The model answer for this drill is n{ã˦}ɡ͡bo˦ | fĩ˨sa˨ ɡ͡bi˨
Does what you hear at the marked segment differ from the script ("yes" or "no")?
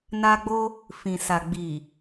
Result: yes